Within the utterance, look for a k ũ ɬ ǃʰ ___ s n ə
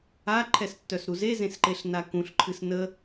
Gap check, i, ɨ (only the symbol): ɨ